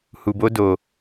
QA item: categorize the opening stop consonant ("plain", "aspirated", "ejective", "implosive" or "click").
plain